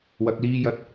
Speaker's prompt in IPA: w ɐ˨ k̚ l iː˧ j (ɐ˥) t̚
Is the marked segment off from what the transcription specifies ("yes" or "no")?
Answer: yes